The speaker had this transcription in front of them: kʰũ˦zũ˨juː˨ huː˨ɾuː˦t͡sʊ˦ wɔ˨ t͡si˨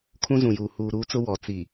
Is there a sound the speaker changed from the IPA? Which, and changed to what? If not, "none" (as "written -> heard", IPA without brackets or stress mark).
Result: none